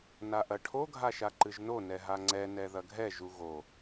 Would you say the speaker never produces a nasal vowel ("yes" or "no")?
yes